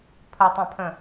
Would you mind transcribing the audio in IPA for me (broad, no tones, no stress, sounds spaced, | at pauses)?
pʰ ə tˤ ã pʰ ə̃